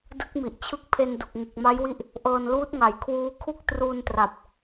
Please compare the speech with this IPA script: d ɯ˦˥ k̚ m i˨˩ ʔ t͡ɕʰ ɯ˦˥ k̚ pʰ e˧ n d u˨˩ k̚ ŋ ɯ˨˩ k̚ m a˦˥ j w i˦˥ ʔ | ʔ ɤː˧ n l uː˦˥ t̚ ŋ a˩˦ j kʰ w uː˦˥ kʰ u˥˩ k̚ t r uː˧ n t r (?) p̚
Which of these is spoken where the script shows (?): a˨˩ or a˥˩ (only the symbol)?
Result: a˨˩